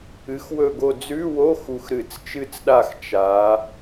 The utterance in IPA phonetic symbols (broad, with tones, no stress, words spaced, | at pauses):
ɨ˩˧xwɵ˧˩ɡo˧˩ d͡zʉ˧˥˧wo˧˥˧ xu˧˩xɾɨ˧˩˧t͡st͡ʃɨ˥˨t͡sɗa˥˨x t͡ʃa˩˧